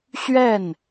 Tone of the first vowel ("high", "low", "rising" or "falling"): falling